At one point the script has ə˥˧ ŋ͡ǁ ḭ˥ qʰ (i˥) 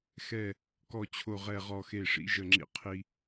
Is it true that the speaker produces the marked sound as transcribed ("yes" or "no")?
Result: yes